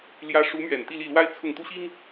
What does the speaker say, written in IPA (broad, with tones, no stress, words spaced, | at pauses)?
ljä˧˥ʂu˧˥mɥɛ˨˩n t̪i˥˧li˥˩lwa˥ɪ̯t͡sʰʊ˥˩ŋ t̪u˥ɕi˥ŋ